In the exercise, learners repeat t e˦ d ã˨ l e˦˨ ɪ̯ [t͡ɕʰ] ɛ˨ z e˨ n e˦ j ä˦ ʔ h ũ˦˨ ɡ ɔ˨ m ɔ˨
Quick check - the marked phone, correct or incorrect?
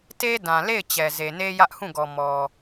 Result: incorrect